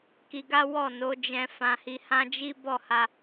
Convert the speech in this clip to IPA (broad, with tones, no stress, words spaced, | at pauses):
ki˧ɡa˦ wɔ˦˨ no˨˦d͡ʒɛ̃˧ fã˧hi˧hã˦d͡ʒi˦ bɔ˦˨ha˧